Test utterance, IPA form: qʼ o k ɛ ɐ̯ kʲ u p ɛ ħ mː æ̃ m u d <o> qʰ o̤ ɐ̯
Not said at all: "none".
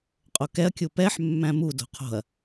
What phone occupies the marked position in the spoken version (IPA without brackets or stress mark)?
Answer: o̤